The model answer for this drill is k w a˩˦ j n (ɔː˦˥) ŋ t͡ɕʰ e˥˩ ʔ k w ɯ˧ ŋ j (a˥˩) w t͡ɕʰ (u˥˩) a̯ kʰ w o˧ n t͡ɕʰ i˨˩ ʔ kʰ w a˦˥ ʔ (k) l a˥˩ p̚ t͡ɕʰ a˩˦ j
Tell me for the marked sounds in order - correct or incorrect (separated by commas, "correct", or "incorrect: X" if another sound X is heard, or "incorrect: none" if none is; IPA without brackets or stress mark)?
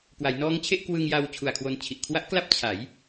correct, incorrect: a˧, incorrect: u˨˩, correct